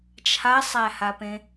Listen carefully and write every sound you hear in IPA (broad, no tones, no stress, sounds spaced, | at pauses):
t͡ʃʰ a sˤ æ h a p ẽ